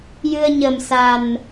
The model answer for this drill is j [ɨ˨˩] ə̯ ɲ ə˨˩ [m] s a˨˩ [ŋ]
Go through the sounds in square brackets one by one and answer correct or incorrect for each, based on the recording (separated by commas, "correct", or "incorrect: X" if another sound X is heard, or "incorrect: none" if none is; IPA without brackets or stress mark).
incorrect: ɨ˧, correct, incorrect: n